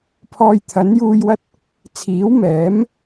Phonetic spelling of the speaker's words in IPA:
pʰ ɔː˧ j t̪ʰ ɐ˨˥ n j uː˧ j w ɐ˥ t̚ | t͡sʰ iː˨˥ w m ɛː˨˥ m

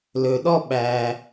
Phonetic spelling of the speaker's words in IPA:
l ɵ˩ ɗ ɔ˥˧ ɓ æ˩

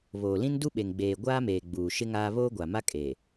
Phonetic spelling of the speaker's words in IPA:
β oː˨ l ĩ˦ n d u˦ ɓ e˨ ŋ ɡ͡b eː˨ ɡʷ aː˦ m eː˨ ɡ͡b uː˨ ʃ ɪ˦ ŋ aː˦ β oː˦ ɡʷ a˨ m a˦ kʼ eː˨

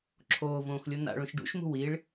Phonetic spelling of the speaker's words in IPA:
ǁʰ oː v õː x lʲ o n a̰ ɭ õ ʃ ɖ ṵ ʃ m ṳ w i ɭ

